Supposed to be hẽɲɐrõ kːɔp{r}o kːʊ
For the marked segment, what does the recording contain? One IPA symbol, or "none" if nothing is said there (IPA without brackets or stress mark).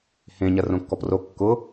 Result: r